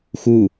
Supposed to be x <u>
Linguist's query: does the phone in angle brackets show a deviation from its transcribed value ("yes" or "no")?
no